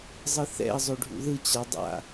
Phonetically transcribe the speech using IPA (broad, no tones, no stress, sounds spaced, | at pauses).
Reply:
zˤ ɯ θ ɛ̰ ə̯ zˤ o ɖʱ ṵ ð ɯ t͡ɕ a dˤ a̰